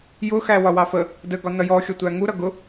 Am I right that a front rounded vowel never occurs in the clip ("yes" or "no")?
yes